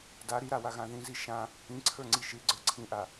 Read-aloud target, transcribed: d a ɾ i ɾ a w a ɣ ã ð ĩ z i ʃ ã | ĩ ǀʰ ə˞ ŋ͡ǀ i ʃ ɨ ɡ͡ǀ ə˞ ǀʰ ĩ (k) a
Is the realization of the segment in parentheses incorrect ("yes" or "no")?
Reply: yes